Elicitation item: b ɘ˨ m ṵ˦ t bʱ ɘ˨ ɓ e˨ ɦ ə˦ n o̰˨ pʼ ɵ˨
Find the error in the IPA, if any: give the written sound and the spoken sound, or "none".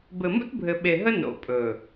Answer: none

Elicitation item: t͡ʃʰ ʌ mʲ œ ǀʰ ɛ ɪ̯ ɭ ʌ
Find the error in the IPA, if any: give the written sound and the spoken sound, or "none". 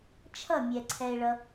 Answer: œ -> ɛ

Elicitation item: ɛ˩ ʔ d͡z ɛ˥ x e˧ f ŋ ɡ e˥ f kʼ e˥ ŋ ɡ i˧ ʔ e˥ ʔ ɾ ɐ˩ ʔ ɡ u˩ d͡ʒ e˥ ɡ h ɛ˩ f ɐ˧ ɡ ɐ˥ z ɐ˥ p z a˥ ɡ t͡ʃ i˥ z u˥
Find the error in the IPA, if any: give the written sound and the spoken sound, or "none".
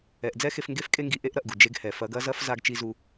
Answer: p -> f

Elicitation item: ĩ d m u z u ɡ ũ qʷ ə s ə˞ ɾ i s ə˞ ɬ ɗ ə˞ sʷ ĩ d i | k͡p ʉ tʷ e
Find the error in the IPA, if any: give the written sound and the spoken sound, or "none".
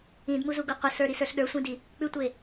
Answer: ũ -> u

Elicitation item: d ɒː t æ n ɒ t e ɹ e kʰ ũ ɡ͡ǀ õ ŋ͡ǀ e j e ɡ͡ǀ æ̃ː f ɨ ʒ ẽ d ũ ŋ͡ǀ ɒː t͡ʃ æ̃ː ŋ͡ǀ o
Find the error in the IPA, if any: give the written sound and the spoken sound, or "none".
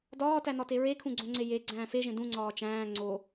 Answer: ɨ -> e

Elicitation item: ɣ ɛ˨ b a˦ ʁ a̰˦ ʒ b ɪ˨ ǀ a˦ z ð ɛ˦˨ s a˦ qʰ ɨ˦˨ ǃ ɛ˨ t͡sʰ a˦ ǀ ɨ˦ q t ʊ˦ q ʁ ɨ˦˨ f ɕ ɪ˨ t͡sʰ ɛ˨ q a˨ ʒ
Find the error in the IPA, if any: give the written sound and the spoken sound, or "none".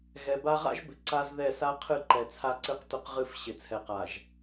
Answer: none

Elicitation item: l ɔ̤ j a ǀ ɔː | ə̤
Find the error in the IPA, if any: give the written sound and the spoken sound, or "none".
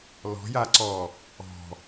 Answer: ə̤ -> ɔ̤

